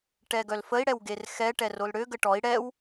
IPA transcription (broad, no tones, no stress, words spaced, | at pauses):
ʈɛɡœlfəi̯ ɽɛwɡerxɛ ʈɛrolɽø ɡəʈɔi̯ ɽɛw